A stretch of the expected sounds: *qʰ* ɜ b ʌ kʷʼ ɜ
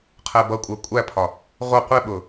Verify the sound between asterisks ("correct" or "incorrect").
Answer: correct